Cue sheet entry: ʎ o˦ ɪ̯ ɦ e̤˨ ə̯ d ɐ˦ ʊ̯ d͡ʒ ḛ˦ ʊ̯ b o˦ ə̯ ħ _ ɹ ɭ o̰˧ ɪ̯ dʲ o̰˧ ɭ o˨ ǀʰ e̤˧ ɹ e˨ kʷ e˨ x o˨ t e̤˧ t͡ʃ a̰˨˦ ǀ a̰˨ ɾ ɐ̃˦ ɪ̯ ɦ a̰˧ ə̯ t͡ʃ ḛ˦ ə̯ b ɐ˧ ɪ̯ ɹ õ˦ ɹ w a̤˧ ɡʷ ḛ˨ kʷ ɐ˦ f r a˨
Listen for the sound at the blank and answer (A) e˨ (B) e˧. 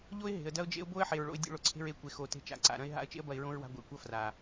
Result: A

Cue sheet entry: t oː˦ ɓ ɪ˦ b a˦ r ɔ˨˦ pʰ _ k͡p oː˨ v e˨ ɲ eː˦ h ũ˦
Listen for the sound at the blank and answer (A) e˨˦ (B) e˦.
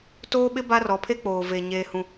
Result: B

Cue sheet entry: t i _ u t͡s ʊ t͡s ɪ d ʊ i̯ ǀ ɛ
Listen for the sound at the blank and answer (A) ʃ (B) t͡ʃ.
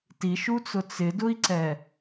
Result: A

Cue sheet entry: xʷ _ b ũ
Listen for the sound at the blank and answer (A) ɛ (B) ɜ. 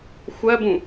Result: B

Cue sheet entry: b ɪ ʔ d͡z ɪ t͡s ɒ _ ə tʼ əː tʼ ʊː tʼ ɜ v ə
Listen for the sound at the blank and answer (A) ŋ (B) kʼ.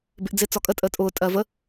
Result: B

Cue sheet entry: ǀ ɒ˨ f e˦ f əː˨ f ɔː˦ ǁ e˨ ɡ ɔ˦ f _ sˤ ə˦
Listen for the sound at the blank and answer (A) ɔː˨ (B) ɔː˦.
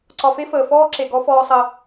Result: B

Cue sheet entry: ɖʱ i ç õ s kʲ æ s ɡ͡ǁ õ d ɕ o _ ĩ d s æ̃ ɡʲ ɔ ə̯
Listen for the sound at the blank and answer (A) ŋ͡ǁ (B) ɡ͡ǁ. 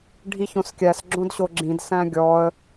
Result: B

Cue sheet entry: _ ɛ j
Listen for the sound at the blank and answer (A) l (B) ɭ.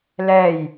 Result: A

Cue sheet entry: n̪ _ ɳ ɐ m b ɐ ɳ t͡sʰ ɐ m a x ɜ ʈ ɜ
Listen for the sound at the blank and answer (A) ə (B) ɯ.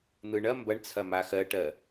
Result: B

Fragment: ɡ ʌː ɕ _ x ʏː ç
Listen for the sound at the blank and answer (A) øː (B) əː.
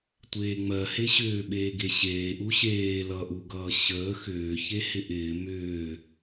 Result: B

